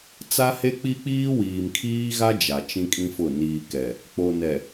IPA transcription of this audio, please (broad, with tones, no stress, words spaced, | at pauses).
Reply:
t͡sa˦he˦k͡pi˦k͡piː˦ wiː˨mkʰiː˦ɣa˦ d͡ʒa˨t͡ʃĩ˦kʼĩ˦fʊ˦˨ niː˨kɛ˨ | k͡po˨nɛ˨